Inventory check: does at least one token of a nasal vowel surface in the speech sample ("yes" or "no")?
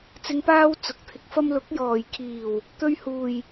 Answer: no